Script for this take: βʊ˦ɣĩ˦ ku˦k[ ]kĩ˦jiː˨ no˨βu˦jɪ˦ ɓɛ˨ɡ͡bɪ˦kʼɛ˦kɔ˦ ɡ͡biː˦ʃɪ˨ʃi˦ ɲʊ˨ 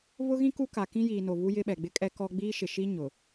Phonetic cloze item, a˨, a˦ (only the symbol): a˨